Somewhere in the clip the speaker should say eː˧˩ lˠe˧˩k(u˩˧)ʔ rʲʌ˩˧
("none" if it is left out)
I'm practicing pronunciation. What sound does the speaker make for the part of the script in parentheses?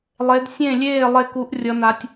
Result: u˩˧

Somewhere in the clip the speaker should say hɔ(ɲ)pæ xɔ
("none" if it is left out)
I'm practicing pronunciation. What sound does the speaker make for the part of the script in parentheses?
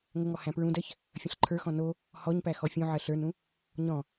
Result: ɲ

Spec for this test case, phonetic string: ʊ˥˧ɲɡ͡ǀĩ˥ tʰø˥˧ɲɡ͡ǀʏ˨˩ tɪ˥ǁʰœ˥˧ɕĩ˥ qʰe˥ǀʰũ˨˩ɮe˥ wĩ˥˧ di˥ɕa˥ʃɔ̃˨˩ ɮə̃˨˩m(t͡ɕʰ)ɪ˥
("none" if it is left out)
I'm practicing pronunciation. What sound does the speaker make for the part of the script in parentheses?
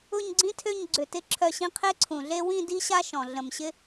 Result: ɕ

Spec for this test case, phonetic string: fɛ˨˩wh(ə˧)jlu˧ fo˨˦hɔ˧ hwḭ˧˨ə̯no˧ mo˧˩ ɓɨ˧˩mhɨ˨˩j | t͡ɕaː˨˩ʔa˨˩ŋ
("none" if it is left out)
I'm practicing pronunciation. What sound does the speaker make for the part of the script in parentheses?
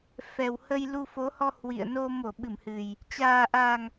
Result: ə˧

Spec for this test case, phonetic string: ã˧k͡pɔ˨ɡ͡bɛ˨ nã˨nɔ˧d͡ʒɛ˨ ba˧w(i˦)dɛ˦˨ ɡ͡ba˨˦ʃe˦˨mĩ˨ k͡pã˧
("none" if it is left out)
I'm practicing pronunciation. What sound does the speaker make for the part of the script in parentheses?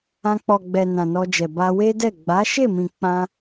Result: e˦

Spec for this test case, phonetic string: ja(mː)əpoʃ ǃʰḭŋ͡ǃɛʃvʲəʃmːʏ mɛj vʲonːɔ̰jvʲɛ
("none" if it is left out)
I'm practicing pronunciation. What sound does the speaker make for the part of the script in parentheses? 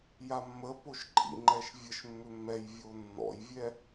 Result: mː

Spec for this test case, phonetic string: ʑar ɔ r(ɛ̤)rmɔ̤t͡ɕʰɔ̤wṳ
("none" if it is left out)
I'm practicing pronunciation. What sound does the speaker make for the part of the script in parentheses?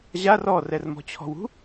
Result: ɛ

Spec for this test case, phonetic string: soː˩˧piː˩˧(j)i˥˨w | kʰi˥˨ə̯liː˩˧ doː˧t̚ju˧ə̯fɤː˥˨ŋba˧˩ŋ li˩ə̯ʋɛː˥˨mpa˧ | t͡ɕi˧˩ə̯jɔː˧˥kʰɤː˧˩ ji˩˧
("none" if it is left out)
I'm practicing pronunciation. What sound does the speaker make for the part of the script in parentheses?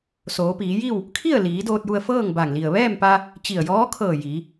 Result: j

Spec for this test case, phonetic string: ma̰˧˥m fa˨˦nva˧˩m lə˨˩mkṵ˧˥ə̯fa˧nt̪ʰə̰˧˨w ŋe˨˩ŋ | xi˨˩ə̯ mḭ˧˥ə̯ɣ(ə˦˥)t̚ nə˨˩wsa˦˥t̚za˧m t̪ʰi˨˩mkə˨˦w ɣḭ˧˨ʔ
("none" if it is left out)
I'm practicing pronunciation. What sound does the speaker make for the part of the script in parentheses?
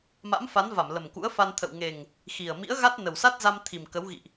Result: a˦˥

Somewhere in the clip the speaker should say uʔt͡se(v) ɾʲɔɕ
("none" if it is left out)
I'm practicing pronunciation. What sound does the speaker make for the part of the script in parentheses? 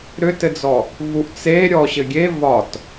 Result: none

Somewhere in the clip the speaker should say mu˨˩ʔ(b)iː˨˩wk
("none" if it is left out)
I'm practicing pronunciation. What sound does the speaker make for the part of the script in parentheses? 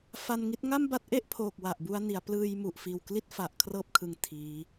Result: f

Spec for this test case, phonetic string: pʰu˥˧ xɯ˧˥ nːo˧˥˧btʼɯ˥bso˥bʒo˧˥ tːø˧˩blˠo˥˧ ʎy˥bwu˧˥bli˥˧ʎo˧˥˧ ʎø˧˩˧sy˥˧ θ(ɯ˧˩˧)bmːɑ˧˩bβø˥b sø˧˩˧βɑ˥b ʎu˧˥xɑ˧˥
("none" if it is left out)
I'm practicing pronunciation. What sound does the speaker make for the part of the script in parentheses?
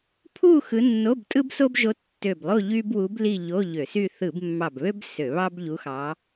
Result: ɯ˧˩˧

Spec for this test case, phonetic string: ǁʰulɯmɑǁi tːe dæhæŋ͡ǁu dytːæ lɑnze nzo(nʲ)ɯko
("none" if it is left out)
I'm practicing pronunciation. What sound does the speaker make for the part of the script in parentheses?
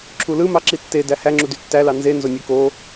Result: nʲ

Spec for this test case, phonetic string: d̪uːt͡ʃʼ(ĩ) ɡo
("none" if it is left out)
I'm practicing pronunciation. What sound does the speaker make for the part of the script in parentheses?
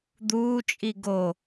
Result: i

